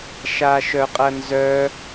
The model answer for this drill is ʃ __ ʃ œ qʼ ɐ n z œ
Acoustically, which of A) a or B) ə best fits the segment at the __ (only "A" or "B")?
A